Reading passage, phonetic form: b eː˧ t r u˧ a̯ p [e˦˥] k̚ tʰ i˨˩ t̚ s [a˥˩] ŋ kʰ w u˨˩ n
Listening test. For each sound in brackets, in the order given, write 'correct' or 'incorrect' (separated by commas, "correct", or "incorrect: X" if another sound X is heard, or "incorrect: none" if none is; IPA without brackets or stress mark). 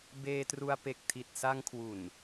incorrect: e˨˩, incorrect: a˧